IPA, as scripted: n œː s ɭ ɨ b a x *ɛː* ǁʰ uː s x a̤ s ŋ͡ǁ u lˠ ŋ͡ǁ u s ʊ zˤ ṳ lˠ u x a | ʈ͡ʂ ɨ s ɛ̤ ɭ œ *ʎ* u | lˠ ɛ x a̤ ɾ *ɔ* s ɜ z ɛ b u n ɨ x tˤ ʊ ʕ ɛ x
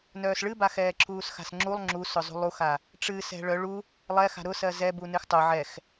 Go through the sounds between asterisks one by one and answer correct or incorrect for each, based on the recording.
correct, incorrect: ɭ, incorrect: ʊ

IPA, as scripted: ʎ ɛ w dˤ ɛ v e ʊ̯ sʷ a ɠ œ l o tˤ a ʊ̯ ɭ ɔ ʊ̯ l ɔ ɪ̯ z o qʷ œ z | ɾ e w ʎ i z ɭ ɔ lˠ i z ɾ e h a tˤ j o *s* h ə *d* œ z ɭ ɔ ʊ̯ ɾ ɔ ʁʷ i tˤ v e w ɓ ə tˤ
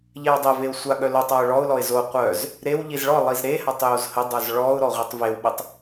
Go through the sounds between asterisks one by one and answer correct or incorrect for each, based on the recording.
incorrect: z, incorrect: dˤ

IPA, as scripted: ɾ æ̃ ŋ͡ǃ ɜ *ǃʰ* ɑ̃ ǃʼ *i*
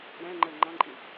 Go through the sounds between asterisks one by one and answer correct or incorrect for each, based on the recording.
incorrect: ŋ͡ǃ, correct

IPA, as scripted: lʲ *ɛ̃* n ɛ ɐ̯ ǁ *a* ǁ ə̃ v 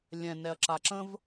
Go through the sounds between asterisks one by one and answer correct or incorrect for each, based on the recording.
correct, correct

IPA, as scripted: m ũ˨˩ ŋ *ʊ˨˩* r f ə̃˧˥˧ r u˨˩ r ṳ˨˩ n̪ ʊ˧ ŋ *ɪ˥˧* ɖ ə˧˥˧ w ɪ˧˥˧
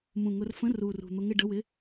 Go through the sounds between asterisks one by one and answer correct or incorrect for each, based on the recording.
incorrect: ʊ˧, correct

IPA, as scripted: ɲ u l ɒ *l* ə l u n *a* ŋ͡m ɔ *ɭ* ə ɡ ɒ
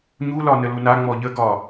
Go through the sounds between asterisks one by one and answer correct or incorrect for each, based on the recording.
incorrect: n, correct, incorrect: ʎ

